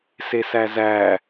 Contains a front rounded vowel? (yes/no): no